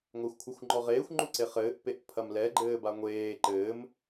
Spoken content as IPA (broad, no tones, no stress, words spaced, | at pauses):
ŋʷaxʷkʷʰaxʷŋ͡ǃɔʁeːxʷ ŋ͡ǃuǀeχɘːʔ peʔpʰɐmlɛ ɡ͡ǃɘːbaŋʷeː ǃɘːm